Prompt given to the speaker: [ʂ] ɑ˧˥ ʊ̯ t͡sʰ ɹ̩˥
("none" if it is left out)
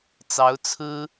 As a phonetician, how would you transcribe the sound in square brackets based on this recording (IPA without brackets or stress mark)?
t͡s